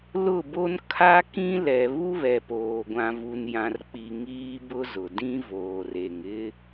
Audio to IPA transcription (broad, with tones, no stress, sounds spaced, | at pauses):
l ʊ˦˨ b o˦ n kʰ a˦ k ĩ˦ l ɛ˨ β u˦ β ɛ˨ p oː˨ ɡʷ ã˨ v u˨ n j ã˨ r k͡p i˨ ŋ iː˦ b ʊ˦ z ʊ˨ d ĩ˦ v oː˨ r e˨ ŋ ɪ˦